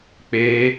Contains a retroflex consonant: no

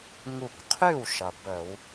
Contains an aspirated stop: yes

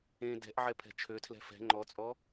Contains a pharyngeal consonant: yes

